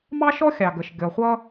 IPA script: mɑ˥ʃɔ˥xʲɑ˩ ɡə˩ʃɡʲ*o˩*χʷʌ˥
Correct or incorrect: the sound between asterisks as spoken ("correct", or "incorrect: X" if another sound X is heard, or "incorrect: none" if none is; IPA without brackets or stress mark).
incorrect: ɔ˩